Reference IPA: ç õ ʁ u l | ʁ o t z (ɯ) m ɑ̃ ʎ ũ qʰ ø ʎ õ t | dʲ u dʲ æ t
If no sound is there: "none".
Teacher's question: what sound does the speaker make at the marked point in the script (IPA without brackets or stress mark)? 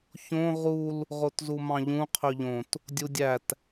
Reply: u